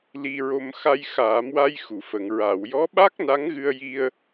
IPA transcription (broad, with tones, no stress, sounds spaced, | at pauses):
l i˧ ɹ o˧ m x a˧ j x aː˨˩˦ m w a˧ j x u˨˩˨ f ə˨˩˨ ŋ ɹ a˨˩˨ w j ɔ˧˥ ɓ a˦˥ k̚ n a˧˥ ŋ ɣ ɨ˧ ə̯ j i˧ ə̯